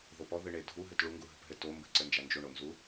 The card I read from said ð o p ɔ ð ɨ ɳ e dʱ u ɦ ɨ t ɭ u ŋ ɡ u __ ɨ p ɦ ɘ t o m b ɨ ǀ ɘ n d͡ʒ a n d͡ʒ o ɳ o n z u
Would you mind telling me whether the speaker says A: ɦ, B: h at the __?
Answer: A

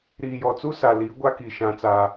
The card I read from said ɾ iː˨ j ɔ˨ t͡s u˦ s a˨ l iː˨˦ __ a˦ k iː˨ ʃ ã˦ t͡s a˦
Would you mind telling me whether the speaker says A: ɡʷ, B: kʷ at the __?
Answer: A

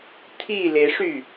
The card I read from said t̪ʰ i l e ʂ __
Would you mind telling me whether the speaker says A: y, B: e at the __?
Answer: A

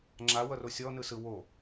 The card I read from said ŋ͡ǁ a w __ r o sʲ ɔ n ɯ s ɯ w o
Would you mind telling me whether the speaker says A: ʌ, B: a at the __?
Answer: A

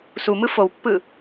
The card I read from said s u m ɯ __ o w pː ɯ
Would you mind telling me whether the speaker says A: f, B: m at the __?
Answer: A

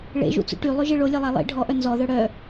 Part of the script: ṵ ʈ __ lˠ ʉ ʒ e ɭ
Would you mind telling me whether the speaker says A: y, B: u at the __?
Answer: A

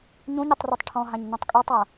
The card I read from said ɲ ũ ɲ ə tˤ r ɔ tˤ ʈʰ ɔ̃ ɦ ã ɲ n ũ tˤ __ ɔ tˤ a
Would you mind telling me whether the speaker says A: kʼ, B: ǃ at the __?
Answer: A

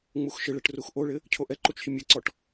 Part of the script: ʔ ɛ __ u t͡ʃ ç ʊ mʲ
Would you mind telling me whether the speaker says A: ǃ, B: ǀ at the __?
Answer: A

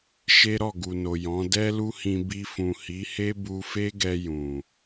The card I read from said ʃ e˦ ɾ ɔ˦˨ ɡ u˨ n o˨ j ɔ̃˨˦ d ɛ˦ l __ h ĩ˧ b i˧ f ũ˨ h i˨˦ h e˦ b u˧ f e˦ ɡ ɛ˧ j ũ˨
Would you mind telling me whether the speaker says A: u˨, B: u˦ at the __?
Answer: B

